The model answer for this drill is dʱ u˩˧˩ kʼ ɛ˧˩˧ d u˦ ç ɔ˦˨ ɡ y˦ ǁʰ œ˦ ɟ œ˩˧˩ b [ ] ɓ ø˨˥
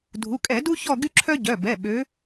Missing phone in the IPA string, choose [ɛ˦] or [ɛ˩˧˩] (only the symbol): ɛ˩˧˩